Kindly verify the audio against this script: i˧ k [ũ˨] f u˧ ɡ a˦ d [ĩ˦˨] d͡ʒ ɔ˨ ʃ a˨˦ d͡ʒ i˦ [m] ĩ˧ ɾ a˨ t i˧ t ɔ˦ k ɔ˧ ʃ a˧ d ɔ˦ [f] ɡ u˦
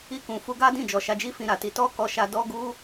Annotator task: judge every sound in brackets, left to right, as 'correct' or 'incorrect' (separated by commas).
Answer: correct, correct, incorrect, incorrect